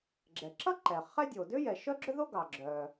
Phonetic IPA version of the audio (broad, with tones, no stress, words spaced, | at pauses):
ɡ͡ǁɛ˩ǁʌ˥ǃɛ˩ χɛ˥dʲo˩ dʏ˥jɛ˩ ʃœ˥ɡ͡ǁʏ˥ðo˥ ɡɑ˩ɡ͡ǁœ˩